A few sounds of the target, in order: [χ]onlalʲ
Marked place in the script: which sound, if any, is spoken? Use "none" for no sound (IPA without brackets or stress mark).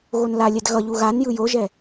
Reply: ɣ